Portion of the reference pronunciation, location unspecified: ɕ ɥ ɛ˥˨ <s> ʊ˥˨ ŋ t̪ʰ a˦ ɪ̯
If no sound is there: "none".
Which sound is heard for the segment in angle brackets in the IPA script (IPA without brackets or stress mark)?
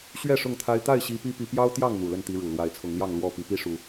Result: ʂ